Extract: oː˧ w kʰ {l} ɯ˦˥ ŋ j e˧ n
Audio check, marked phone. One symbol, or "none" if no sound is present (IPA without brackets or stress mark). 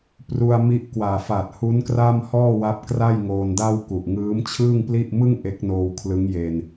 l